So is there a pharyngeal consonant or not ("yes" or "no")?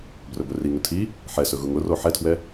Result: yes